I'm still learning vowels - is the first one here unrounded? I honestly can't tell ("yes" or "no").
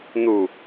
no